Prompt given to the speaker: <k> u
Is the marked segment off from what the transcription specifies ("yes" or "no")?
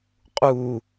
yes